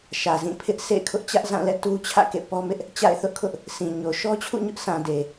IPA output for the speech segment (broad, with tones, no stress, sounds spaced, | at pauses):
ʃ ä˨ z ĩ˦˨ pʰ ɪ˦ ʔ sʰ ḛ˦˨ ɪ̯ kʰ ʊ˦ ʔ t͡ɕ ä˦ ʔ z ã˦˨ l ɛ̰˦˨ t u˦ t͡ɕʰ ä̰˦˨ k ḛ˦˨ p ɔ˦ m ɪ˦ ʔ | t͡ɕ a̰˦˨ ɪ̯ θ ʊ˦ ʔ kʰ ʊ˦ ʔ | sʰ ĩ˨ ɲ o˨ ʃ ɔ˦ t͡ɕʰ ṵ˦˨ ɲ ʊ˦ ʔ s ã˨ d e˨